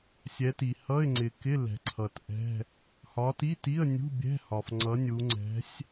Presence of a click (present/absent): present